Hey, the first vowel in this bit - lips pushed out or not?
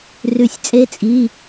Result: yes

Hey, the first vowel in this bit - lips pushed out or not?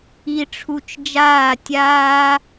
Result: no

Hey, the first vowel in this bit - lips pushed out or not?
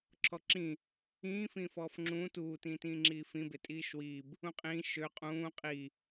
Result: yes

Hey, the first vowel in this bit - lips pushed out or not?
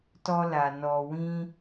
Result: yes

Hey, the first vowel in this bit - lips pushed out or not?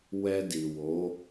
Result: no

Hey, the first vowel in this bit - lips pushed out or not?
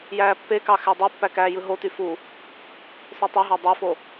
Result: no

